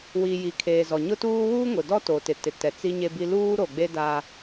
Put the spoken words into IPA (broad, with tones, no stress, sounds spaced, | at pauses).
w i˨ j i˨ kʰ eː˨ z ɔ˨ ɲ ʊ˦ t uː˦ w uː˦ ŋ ʊ˨ d ɔ˦ t o˨ t ɪ˨ t ɪ˨ t ɛ˨ t͡s i˦ ɲ e˦ b i˦ l uː˦ ɾ o˨ ɡ͡b e˦ d a˦